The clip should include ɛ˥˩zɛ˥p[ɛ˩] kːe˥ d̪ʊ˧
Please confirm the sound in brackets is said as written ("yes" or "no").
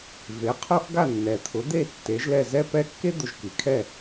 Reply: no